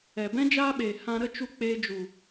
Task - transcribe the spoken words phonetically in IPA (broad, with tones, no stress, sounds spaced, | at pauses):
ɛ˨ b ɛ̃˦ d͡ʒ aː˦ ɓ eː˨ h ã˧ ɾ ə˦ t͡ʃ u˧ k͡p eː˧ d͡ʒ u˨